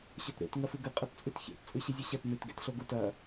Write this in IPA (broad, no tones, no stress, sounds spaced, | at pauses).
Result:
ɕ ɵ t ɾ ḛ t ŋ ɐ f ɨ ɡ ɨ qʼ ɐ t t͡sʼ ʉ t ç ḛ t t͡sʼ ʉ ɕ ɨ zʲ u ɕ ɐ t n ɨ t ɡ ḛ t ɬ o ɡ u t ɐ